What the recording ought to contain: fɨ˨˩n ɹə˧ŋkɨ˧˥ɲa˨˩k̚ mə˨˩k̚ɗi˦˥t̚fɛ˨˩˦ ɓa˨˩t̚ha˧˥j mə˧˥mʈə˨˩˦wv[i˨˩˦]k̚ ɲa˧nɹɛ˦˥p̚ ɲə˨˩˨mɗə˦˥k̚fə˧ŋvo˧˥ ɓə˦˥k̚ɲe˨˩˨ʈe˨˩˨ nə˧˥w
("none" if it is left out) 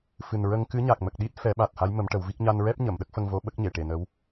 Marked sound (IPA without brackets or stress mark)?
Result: i˦˥